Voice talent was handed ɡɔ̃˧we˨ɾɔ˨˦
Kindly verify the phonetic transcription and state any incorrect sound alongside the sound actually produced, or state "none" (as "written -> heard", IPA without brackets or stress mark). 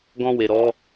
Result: none